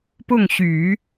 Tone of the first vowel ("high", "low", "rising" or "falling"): falling